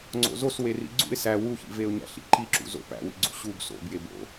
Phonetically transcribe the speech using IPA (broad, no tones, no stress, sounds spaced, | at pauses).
ŋ͡ǀ o̰ z o s w e r ḭ ɡ͡ǀ ṵ ɪ̯ s æ w u ç ḭ v e ʊ̯ ɲ æ̰ ɬ ḭ ǃ i ǁ ṵ z o̰ p æ̰ w ḭ ɡ͡ǀ ṵ ɕ u b s o̰ b j e b o̰